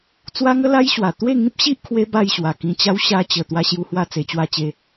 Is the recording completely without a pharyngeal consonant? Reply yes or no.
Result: yes